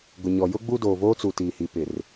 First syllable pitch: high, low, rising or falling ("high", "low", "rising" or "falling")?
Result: low